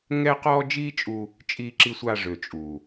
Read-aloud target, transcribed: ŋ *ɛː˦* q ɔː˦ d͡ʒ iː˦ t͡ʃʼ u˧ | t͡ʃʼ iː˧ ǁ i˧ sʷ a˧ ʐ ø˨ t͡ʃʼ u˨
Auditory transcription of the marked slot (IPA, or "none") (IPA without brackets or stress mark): ɛː˦